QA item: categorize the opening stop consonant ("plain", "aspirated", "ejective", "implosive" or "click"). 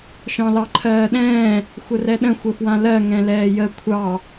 click